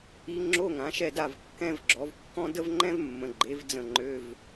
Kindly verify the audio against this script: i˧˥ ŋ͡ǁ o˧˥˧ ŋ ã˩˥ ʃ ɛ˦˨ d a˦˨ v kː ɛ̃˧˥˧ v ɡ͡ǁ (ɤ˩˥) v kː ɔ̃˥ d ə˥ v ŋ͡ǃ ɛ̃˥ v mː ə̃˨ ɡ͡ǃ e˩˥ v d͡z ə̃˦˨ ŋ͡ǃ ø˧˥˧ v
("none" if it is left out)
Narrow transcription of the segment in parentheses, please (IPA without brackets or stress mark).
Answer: ɔ˩˥